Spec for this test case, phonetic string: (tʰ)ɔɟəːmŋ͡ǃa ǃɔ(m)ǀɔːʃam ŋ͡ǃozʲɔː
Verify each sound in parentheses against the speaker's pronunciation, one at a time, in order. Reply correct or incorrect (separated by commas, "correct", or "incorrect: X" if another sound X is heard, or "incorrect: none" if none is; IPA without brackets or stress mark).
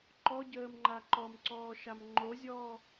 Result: incorrect: ǃ, correct